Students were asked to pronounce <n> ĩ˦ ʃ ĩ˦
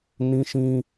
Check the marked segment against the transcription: correct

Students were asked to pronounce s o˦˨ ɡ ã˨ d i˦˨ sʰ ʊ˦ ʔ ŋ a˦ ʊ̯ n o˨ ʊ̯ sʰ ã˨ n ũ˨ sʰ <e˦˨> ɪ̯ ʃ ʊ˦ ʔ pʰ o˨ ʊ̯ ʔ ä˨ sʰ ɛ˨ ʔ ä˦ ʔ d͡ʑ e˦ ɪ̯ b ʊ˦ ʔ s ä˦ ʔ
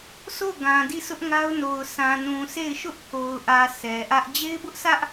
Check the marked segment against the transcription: correct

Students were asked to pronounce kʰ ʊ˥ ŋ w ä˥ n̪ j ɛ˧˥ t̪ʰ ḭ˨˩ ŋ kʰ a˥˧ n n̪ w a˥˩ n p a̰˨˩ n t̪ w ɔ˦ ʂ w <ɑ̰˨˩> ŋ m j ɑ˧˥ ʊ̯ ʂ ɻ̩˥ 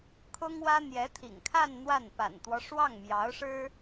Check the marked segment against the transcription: incorrect: ɑ˥˩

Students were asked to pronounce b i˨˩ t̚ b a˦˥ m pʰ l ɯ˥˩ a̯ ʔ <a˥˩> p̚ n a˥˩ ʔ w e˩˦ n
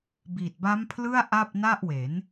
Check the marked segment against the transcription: correct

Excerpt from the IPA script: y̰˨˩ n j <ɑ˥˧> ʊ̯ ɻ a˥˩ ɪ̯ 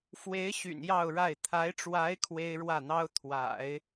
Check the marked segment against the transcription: correct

